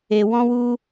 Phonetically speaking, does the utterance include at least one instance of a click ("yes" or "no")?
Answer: no